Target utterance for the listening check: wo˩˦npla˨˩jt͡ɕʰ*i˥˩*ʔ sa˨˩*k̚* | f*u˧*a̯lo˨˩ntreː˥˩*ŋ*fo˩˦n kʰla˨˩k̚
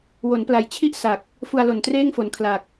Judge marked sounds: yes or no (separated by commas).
yes, yes, yes, yes